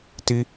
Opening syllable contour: high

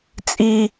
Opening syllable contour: high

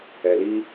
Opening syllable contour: low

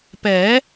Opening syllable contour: rising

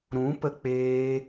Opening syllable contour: rising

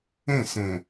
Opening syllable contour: falling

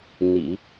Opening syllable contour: low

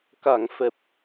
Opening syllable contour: low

